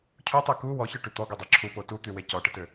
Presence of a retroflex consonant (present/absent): present